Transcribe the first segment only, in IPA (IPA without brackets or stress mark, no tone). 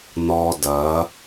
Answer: n